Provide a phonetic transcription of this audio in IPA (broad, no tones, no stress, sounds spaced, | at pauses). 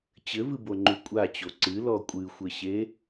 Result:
t͡ɕ ɘ v ɨ b o ŋ͡ǃ u kʷʼ a t͡ɕ o ǀ ɨ l ɔ kʷʼ ɨ xʷ ɘ ɕ e